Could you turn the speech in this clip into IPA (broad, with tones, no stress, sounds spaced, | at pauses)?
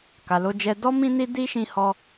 k a˨ l o˧ d͡ʒ ɛ˧ d ɔ˦ m ĩ˦ n i˦ d i˦ ʃ ĩ˧ h ɔ˧